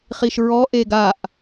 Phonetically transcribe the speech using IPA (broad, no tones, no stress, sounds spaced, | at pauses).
χ i ʃ ɹ ɔ ʔ e ɡ a ʔ